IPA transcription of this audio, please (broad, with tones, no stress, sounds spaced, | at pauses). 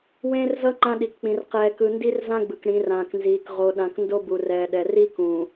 w ẽː˦ r z ʌ˦ ŋ͡ǃ ã˦ ɗ i˨ k k͡p ĩ˨ r q ɛː˨ k ɯ˨ n d i˦ r z ã˦ ɡ͡b ɯ˨ k ɽ ĩ˨˦ r ãː˨ k n z iː˨ k ʁ o˨ ɗ ã˨ k n d o˦ b u˨ r ɛː˨ ɗ ɛ˨ r i˦ k ũː˨